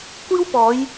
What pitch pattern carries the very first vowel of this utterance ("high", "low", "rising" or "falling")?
high